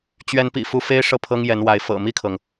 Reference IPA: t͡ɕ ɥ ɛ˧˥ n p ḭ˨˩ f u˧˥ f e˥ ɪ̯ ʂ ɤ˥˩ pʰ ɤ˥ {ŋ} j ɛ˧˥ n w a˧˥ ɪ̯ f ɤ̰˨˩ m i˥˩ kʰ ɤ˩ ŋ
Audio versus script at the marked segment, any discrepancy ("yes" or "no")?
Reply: no